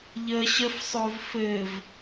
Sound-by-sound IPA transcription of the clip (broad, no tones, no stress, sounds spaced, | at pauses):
ʎ ə ɕ ə f sˤ o v f ɘ v